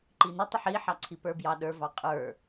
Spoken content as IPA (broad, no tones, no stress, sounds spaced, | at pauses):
ǃ i n ə tˤ ɪ ħ i ħ ɑ ǀʰ i p ə˞ b j ɑ ɗ ə˞ v ɑ qʼ ə˞